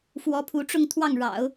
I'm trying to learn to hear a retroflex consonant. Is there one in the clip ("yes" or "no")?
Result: yes